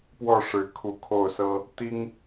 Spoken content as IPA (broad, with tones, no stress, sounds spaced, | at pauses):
p w ɔ˥˩ ʂ ɻ̩˧˥ kʰ u˧˥ kʰ o˥˩ ʊ̯ s ɤ˥ | t̪ i˥ ŋ